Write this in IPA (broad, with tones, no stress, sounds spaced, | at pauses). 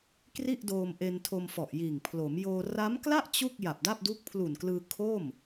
k r i˥˩ ʔ d oː˧ m ʔ e˧ n tʰ o˧ m f ɔ˨˩ ʔ j iː˨˩ ŋ pʰ l o˩˦ m j oː˧ r a˦˥ m k l a˥˩ ʔ t͡ɕ u˥˩ k̚ j a˨˩ p̚ d a˥˩ p̚ d u˦˥ k̚ pʰ l u˨˩ n k l ɯː˧ kʰ o˥˩ m